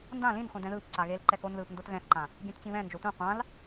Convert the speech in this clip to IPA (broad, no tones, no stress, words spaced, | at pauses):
ndã lĩnχʷĩ dɛ̃ðɯːpǀa ɣeːlǃɛkonðɯːp ndotɣɛ̃θǃã | ɡʲɛ̃tt͡ɕĩβɛ̃nd͡ʒo tʷĩ qʷãl